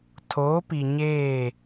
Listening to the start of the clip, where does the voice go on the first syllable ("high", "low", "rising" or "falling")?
rising